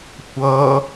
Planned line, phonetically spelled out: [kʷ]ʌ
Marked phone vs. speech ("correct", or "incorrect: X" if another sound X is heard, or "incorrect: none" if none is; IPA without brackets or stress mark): correct